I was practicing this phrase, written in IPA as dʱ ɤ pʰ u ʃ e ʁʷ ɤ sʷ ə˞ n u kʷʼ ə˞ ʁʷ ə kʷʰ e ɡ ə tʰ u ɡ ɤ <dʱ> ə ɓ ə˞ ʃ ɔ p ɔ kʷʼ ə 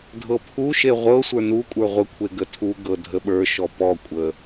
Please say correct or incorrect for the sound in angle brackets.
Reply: correct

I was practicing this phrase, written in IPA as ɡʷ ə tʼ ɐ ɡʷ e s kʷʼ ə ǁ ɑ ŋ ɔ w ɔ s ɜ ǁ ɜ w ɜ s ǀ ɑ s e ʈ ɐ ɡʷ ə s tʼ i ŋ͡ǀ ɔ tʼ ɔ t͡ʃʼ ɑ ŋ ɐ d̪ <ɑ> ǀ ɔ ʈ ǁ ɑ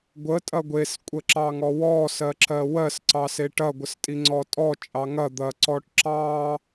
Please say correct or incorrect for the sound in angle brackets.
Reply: incorrect: ɐ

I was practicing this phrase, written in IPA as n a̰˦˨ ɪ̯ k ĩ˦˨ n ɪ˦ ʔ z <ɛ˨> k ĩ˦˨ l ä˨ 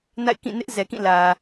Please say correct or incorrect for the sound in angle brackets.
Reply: correct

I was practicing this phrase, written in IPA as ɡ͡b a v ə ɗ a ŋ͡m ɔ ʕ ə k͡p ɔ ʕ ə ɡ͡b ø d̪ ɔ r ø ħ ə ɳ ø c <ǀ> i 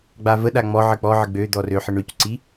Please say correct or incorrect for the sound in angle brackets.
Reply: correct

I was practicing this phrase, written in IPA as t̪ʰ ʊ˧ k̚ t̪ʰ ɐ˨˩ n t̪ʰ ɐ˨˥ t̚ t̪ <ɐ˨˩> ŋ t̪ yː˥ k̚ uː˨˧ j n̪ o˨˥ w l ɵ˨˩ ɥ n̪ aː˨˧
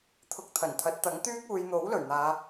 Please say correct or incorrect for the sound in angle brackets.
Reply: incorrect: ɐ˨˥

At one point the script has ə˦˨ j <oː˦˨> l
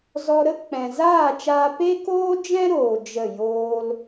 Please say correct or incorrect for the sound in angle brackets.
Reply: incorrect: oː˦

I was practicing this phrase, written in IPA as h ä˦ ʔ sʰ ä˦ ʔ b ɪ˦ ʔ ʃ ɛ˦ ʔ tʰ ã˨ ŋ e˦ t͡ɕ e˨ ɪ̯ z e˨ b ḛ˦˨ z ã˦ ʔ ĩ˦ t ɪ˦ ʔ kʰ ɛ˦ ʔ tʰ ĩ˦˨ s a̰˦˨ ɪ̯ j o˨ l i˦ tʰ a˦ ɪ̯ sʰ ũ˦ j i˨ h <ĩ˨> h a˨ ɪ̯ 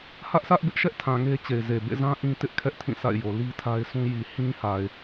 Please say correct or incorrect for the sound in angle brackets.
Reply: incorrect: ĩ˦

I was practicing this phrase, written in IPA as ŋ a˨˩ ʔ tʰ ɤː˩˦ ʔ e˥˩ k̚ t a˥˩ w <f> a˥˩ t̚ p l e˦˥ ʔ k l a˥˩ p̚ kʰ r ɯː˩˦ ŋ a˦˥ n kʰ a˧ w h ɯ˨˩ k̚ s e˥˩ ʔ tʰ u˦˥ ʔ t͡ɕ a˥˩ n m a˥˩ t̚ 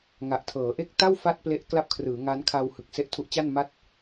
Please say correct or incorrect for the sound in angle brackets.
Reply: correct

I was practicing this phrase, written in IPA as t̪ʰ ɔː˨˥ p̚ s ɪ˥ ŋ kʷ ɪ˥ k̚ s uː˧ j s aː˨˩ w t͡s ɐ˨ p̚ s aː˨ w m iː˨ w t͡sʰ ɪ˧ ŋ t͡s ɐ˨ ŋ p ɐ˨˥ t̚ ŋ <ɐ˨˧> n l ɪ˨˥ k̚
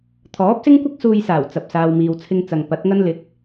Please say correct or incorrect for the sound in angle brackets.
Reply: incorrect: ɐ˥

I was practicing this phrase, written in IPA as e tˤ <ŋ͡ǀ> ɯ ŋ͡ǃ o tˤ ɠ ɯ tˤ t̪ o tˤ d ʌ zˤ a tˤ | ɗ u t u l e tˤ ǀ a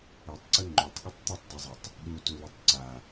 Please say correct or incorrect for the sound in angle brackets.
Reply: incorrect: ǀ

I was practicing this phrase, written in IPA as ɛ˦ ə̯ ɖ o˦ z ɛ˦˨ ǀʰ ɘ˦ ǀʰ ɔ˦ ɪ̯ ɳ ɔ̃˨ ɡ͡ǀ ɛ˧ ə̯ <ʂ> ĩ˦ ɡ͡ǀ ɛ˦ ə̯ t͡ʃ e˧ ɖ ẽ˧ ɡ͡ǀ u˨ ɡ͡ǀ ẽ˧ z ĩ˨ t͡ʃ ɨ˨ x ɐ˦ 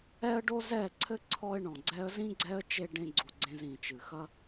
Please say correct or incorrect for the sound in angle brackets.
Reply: incorrect: z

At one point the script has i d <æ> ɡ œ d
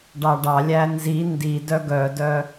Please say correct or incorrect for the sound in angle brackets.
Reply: incorrect: œ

